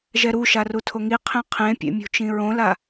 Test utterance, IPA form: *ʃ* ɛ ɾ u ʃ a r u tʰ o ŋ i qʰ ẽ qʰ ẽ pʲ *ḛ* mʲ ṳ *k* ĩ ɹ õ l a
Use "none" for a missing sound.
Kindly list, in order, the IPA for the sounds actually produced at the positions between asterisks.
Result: ʒ, ḛ, t͡ʃ

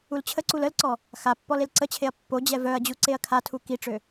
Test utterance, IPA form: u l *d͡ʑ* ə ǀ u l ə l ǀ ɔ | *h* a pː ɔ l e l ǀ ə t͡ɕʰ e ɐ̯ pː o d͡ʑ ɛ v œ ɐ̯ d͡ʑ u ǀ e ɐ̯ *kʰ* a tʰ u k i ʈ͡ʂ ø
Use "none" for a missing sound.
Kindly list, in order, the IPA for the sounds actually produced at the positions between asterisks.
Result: t͡ɕʰ, x, kʰ

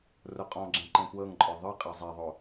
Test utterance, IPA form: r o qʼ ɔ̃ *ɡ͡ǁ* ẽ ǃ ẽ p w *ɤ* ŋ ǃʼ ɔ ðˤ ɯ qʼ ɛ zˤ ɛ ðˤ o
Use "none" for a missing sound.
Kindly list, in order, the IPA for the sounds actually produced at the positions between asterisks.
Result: ɡ͡ǁ, ɤ

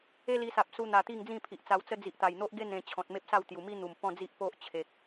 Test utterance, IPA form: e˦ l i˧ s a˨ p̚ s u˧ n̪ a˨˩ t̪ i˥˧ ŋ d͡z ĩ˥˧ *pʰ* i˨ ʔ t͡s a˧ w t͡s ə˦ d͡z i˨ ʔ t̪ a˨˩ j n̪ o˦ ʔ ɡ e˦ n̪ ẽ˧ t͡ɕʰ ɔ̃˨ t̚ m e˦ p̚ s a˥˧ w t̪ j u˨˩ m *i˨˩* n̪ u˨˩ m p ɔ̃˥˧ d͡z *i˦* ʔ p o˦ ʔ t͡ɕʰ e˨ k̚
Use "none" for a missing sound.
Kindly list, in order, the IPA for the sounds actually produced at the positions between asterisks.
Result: pʰ, i˦, i˦

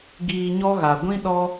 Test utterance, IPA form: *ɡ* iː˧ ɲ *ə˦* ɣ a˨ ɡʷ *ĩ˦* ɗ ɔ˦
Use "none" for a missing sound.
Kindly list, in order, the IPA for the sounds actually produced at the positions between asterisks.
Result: ɡ, ɔ˦, ĩ˦

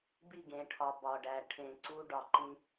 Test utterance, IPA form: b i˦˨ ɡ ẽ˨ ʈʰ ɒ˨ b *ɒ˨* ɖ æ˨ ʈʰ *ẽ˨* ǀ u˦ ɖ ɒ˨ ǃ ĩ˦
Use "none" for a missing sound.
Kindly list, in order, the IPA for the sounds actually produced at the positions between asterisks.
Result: ɒ˨, ẽ˨

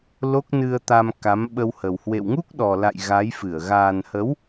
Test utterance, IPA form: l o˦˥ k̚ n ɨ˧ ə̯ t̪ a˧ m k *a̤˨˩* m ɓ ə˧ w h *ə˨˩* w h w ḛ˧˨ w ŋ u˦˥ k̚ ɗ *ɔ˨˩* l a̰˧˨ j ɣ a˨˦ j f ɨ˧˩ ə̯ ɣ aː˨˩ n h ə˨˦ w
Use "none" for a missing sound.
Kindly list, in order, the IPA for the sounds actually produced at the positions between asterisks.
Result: a˨˦, ə˨˩, ɔ˨˩

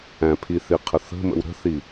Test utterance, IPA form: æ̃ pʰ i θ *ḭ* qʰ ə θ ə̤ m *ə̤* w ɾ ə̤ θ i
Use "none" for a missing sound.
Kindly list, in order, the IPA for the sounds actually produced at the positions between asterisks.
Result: i, ə̰

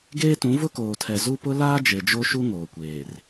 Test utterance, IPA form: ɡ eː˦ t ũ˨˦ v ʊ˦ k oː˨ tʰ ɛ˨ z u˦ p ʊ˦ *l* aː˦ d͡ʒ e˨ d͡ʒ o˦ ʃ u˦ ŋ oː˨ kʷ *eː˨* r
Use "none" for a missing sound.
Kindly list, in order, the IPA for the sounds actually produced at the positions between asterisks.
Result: l, eː˨

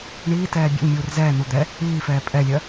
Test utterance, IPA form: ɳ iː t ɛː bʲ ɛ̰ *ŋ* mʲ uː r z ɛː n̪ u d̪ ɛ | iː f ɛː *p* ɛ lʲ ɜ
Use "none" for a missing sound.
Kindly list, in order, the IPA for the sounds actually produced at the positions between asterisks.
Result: ŋ, pʼ

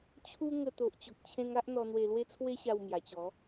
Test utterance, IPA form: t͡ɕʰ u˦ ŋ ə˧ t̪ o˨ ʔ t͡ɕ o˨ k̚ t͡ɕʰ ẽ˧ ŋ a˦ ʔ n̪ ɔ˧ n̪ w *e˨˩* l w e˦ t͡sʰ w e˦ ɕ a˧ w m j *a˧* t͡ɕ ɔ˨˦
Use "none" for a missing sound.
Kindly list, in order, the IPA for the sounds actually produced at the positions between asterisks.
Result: e˧, a˨˩

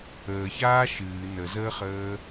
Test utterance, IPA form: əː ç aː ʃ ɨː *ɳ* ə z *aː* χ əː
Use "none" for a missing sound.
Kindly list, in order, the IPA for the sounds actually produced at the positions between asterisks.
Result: n, əː

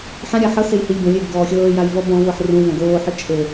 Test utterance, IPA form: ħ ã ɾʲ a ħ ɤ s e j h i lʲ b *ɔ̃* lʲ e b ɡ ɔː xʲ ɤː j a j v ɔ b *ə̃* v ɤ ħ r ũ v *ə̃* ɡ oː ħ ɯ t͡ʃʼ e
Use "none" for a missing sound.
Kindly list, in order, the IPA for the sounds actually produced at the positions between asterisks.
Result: õ, ɔ̃, ɔ̃

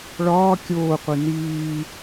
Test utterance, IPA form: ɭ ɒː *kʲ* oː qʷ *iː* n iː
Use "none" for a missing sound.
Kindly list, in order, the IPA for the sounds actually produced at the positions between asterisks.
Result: kʲ, i

